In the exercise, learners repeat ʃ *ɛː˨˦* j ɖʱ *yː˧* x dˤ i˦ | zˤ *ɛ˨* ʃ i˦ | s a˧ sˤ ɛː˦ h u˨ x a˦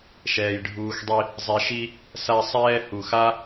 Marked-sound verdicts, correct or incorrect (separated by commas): incorrect, incorrect, incorrect